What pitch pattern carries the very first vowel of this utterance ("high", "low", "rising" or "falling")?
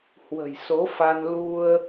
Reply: low